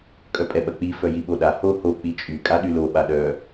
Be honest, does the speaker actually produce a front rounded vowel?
yes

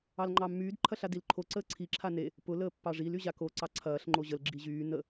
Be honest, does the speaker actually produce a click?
yes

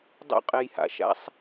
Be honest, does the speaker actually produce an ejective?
yes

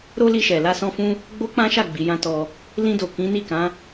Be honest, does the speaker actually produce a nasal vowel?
yes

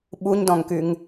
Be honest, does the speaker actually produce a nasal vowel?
yes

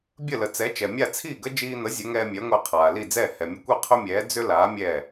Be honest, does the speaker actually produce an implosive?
no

